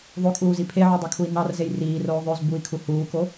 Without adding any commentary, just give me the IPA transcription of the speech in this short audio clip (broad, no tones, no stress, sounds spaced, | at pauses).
ðˤ o kʼ uː z i pʰ e ʕ u dˤ o kʰ u i̯ n ɑ r z e j r iː r oː ðˤ ø z b u i̯ kʰ u h uː k o